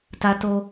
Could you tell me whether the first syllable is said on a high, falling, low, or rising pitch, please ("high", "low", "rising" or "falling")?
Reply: high